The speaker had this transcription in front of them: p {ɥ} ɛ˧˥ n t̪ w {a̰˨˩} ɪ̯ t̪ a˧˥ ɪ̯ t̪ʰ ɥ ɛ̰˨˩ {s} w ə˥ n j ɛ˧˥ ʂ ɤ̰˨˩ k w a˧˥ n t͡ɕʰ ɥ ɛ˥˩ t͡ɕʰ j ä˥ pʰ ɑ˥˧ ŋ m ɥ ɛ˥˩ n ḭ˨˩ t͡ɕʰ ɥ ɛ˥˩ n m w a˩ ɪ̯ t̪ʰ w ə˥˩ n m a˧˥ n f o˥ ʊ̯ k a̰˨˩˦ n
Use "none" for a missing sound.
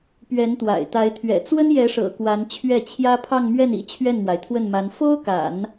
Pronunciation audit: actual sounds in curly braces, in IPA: ɥ, a̰˨˩, t͡s

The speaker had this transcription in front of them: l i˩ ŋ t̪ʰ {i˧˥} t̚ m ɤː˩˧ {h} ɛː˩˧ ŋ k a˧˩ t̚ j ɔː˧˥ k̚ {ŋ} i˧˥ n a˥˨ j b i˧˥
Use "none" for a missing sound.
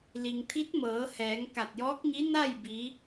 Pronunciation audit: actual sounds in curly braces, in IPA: i˧˥, h, ɲ

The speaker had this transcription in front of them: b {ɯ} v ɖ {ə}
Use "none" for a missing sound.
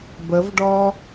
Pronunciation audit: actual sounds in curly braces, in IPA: ə, ɔ

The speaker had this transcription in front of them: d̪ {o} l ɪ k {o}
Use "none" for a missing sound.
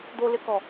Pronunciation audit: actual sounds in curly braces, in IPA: o, ɔ

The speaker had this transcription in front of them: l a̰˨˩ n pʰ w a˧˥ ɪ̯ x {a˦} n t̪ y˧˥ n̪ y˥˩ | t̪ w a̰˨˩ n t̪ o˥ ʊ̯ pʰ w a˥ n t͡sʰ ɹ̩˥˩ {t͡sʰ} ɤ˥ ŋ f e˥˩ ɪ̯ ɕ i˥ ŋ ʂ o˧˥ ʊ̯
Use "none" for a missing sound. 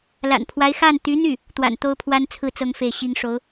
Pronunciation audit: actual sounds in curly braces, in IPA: a˥˩, t͡s

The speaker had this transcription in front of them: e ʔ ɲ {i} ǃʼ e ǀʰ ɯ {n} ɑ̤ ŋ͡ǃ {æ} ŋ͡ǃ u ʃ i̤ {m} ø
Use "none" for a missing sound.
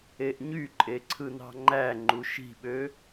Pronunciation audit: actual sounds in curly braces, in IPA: y, n, æ, ɓ

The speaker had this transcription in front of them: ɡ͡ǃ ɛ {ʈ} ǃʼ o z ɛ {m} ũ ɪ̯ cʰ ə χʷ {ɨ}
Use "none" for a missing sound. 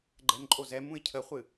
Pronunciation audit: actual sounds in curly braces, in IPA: n, m, ɨ

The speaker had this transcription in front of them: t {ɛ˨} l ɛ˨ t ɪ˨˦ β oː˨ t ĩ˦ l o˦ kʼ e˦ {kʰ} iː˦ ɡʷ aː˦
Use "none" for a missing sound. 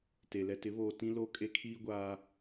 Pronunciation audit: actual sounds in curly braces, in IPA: e˨, kʰ

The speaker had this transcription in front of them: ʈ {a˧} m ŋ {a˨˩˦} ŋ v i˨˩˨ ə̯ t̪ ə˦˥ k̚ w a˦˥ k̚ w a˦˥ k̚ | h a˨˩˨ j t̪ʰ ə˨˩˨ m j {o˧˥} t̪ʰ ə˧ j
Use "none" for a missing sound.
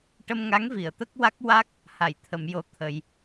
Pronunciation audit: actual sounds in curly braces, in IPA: ə˧, a˧˥, o˧

